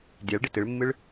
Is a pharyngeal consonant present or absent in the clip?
absent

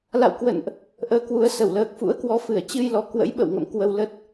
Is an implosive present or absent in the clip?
present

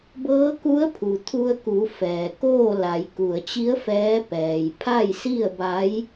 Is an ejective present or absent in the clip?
absent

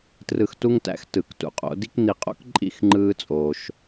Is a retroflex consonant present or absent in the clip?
absent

